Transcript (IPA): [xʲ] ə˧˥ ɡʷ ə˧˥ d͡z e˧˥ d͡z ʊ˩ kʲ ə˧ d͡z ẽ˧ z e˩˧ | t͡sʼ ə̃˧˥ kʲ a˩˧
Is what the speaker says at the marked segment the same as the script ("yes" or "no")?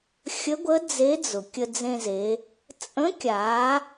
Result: yes